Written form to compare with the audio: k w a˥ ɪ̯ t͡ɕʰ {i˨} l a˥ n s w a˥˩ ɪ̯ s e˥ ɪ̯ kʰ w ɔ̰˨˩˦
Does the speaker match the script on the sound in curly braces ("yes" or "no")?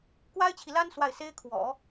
yes